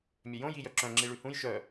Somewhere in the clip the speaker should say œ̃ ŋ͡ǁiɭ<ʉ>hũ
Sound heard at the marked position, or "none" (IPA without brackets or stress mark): ʉ